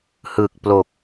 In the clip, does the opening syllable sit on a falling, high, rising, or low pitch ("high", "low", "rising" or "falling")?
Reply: low